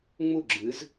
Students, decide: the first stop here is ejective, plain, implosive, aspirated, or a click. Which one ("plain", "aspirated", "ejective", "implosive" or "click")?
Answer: click